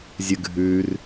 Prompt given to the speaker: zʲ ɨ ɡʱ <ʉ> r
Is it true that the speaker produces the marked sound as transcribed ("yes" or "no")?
yes